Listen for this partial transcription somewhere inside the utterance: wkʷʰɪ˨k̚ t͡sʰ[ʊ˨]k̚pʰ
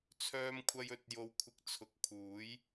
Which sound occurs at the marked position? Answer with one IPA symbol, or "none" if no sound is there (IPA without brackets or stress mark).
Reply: ʊ˨